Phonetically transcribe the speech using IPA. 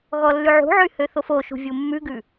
ɣɔlːʉʕṳʕy høθofoʃṳ vʲumːʉɡʉ

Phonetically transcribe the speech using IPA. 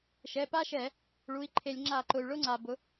ʃɛ˩˧˩pa˥ʃɛ˧˩˧ | ɭu˩˧˩i̯ǃʰe˧˩˧lʲ ŋ͡ǁa˧˩˧ǃʊ˩y̯ɭʊ˥ŋ͡ǀa˩ bʊ˩˥

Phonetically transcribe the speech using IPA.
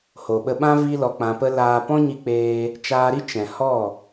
ho˨ɓə˧ɓã˦ vi˦lɔ˧k͡pã˧pə˦ laː˦ pɔ̃˦ɲi˧ k͡peː˧ | t͡ʃaː˧ɾi˦ t͡ʃɛ̃˨ hɔ˦˨

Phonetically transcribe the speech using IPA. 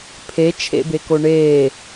pʰet͡ʃʰḛbeko ɳeː

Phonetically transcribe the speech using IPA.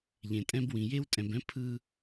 ʎẽ˧tʼɛ̃˥bwĩ˧ je˥wtʼɛ̃˧bɛ̃˥ pʰɯ˥

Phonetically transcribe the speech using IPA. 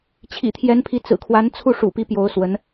t͡ɕʰḭ˨˩t̪ʰjɛ˧˥npʰi˧˥ t͡sɹ̩˨˩kʰwa˧˥nt͡sʰu˥˩ ʂṵ˨˩pi˧˥ pjo˧˥ʊ̯swə˧˥n

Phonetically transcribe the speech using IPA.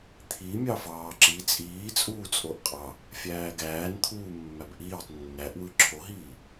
t̪ʰimʲɑ fɑːǁi t͡sʼiːt͡sʼuːt͡sʼoʔ qʼɑ | fʲæːɡæːnt̪ʰuː mːæbʔiːtˤ nːæʔwɯ ǁʰoɦiː

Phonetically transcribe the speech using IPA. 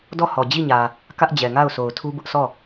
dɔ˦˨hɔ˨d͡ʑi˦˨ɲä˨ | kä˦ʔd͡ʑɛ˨ŋa˦˨ʊ̯ sʰo˨ʊ̯tʰu˦ bʊ˦ʔsʰɔ˦˨

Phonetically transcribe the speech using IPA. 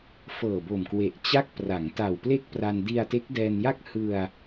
fɤː˨˩bo˨˩mkwe˨˩ʔ t͡ɕa˥˩k̚ pra˩˦ŋta˨˩wple˥˩k̚pra˧n di˧a̯te˦˥k̚dɛː˧nja˥˩k̚ hɯ˧a̯

